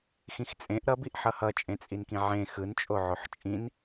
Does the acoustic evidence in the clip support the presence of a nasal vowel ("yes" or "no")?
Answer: yes